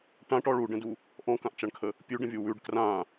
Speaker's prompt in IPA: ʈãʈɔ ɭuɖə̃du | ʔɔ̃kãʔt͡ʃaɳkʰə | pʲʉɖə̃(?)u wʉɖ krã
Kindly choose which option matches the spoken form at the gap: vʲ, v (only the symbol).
vʲ